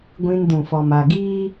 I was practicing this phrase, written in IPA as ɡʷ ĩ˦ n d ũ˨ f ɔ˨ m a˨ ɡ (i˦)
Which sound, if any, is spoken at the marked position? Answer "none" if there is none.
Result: iː˦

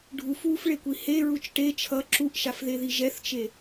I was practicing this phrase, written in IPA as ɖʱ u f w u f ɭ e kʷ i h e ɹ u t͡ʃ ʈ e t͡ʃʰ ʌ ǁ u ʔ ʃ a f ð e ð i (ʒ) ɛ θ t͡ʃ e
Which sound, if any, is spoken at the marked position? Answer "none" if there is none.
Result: ʒ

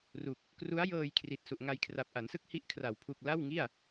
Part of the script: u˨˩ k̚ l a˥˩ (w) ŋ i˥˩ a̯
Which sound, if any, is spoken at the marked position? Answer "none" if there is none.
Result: w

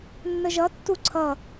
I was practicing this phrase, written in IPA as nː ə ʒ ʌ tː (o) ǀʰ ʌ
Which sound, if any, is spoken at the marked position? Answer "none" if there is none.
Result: u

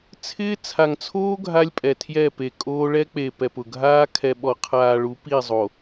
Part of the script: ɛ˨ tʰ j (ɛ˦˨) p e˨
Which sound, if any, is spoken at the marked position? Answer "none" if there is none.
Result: ɛ˦˨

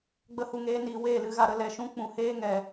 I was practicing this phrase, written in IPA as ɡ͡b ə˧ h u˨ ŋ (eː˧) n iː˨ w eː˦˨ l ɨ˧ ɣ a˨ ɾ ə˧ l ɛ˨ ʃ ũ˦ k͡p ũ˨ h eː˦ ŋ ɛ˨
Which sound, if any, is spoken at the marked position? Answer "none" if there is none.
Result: eː˧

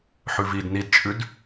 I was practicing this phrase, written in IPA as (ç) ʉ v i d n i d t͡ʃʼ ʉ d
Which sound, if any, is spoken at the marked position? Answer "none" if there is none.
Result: ħ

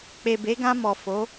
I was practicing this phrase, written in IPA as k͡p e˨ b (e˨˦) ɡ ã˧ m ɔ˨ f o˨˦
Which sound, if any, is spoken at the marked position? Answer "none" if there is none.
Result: e˨˦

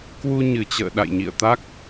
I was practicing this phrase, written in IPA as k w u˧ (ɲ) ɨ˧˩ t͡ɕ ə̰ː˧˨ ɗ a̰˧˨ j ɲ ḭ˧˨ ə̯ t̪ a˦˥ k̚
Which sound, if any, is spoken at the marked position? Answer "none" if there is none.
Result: ɲ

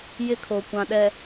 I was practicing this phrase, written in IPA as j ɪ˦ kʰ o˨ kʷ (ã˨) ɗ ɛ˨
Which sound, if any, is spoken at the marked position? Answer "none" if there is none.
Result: ã˨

